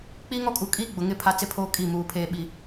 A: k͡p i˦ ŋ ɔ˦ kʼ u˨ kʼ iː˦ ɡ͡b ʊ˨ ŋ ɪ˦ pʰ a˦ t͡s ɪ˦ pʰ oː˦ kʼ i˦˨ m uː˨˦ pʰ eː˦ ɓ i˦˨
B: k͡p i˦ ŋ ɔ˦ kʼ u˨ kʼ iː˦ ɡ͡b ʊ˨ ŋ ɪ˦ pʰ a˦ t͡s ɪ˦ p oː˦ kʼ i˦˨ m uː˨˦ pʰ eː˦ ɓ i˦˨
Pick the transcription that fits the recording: A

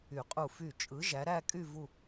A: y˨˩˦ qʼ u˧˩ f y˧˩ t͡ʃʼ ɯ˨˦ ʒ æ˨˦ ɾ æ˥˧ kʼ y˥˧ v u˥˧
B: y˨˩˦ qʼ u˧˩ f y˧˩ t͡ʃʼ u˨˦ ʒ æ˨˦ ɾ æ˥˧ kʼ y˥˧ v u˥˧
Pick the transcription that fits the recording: A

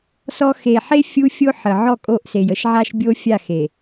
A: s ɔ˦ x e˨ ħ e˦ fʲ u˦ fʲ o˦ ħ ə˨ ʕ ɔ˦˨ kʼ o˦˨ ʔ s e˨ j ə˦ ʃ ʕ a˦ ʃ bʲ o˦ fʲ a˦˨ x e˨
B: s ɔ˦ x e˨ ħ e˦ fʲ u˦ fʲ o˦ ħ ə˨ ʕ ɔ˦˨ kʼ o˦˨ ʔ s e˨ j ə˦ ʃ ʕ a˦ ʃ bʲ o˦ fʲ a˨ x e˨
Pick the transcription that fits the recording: A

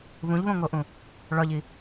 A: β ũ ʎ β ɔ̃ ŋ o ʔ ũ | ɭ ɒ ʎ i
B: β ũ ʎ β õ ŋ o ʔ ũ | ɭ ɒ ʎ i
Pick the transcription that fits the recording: B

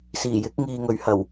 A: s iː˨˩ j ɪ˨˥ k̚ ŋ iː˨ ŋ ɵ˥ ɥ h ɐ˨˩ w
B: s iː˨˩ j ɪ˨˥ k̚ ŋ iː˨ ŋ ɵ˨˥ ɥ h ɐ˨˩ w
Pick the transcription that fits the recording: B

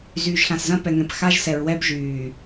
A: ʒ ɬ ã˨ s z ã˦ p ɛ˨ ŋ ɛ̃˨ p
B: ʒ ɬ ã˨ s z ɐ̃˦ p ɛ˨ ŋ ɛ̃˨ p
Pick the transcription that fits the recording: B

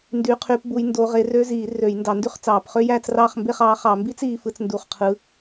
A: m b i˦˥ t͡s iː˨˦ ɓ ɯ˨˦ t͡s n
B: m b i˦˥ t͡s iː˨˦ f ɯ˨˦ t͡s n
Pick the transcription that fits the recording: B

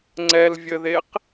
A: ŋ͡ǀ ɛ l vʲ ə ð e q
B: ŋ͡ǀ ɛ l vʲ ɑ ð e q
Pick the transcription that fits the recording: A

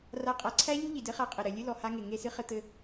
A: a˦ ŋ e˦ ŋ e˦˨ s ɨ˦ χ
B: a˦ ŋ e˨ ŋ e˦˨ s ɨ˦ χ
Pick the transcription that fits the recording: B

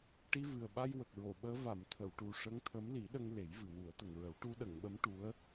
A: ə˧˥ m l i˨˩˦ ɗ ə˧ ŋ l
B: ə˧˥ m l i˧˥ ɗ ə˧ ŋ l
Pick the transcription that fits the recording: A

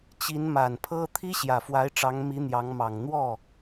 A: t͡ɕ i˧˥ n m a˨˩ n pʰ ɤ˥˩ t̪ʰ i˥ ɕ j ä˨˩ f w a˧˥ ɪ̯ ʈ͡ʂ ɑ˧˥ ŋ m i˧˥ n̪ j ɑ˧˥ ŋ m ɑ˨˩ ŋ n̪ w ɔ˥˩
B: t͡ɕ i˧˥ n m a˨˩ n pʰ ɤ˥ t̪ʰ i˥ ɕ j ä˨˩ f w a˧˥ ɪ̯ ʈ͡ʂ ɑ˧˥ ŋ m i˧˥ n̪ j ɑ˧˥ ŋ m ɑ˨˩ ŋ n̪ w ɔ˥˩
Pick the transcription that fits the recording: B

